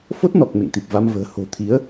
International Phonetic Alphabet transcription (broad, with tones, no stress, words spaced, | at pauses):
fo˦˥t̚nɔ˨˩k̚ mḛ˧˨ŋt̪i˨˩p̚va˧mvə̤ː˨˩ ho̤˨˩t̪ʰi˨˦ə̯